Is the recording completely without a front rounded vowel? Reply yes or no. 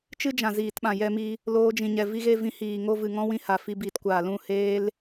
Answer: yes